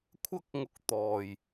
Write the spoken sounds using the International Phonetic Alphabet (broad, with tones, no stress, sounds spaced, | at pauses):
kʷʰ ɐ˥ k̚ ŋ ʊ˧ k̚ t̪ ɔː˨˩ j